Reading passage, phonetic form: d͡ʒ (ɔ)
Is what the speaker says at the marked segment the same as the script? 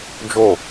no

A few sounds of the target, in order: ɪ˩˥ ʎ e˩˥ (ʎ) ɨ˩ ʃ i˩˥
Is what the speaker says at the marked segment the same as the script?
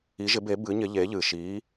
yes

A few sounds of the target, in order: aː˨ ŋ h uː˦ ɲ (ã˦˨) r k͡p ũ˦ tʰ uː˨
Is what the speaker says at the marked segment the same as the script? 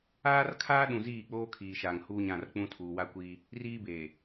yes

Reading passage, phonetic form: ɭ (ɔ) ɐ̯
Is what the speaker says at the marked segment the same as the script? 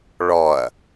yes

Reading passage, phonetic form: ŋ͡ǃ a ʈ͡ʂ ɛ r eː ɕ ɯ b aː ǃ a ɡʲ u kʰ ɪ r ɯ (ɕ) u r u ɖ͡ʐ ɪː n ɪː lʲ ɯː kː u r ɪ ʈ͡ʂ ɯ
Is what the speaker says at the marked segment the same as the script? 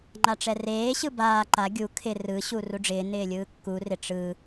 yes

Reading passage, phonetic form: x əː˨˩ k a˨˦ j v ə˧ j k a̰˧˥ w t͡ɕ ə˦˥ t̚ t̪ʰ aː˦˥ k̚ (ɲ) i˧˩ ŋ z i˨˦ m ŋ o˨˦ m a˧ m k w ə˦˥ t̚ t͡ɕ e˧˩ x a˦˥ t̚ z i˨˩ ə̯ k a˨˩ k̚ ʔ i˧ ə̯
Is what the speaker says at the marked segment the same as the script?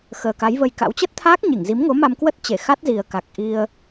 yes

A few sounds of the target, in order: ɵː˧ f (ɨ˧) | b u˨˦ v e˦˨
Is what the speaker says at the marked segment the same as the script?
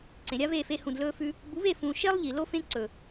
no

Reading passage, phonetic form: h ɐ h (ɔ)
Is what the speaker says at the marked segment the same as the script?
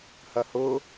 no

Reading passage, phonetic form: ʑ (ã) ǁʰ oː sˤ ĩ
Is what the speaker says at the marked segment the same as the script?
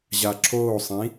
no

